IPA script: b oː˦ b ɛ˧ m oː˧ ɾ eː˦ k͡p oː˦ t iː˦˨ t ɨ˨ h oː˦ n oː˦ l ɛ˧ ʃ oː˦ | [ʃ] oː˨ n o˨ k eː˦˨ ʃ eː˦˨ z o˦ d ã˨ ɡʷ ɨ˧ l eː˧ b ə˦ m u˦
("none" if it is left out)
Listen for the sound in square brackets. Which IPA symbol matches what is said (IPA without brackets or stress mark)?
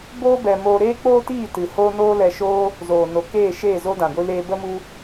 z